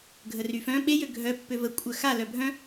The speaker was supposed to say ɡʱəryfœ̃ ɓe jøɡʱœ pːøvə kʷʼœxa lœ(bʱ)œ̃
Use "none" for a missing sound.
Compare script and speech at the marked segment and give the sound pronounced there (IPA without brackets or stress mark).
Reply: bʱ